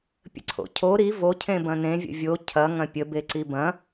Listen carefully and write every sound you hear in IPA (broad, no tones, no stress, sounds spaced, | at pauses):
pʲ ə̰ ǀʰ o̰ cʰ o ɾ i v o cʰ ẽ b ɐ̃ n ẽ vʲ ə̰ vʲ o cʰ ɐ ŋ ɐ̃ pʲ ə b e ǀ i b ɐ̃